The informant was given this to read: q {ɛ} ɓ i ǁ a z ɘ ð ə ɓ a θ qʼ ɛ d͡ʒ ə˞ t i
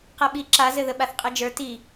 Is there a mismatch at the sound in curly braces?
no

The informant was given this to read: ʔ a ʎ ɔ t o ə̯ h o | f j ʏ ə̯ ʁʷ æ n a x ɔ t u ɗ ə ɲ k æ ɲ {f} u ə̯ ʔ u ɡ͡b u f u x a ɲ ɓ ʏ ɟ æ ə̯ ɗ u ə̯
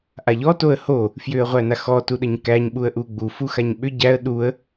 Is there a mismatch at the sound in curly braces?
yes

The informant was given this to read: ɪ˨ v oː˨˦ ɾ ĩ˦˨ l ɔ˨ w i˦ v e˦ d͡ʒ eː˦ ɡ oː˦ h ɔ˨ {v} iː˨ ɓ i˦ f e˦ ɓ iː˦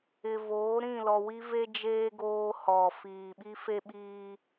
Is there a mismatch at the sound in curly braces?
yes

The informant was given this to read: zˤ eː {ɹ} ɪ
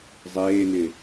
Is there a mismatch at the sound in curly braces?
yes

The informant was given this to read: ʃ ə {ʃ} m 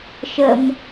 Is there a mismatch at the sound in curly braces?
yes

